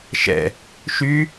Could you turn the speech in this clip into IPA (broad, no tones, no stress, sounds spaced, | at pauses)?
ʃ ɛ̰ | ʃ y